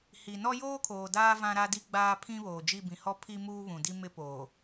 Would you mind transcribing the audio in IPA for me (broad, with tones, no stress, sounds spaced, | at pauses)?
h i˨ n ɔ˦ j oː˦ kʰ oː˨ d aː˦ v ã˦ ɾ a˦ d i˦ ɡ͡b aː˦ pʰ ĩ˦ β oː˨ d͡ʒ i˦˨ b ĩ˨ h ɔ˦ pʰ i˦ m uː˦ β ũ˨ d i˦ m ɪ˦ p oː˨